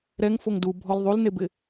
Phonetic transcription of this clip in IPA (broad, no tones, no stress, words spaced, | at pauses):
ɾɛŋfoŋ dubʱɔl ðˤulnebɪ